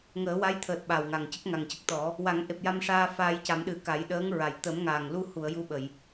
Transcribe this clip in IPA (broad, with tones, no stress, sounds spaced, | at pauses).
ŋ əː˨˩˦ w a˧˥ j t̪ʰ əː˨˩ t̚ ɓ a˨˩ w ŋ a˨˩ ŋ c ə˦˥ k̚ ŋ a˨˩ ŋ c ə˦˥ k̚ t̪ ɔ˨˩˦ | w a˨˩˦ ŋ ʔ e˨˩ p̚ j a˧ m ʂ aː˧ f aː˧ j c a˨˩˦ m ɗ ɨ˨˩˦ k a˨˩˦ j ɗ əː˧˥ ŋ ɹ a˨˩˨ j t̪ ə˨˩˦ m ŋ aː˨˩ ŋ l u˧ h u˨˩˨ ə̯ j u˧ ɓ ə˨˩˨ j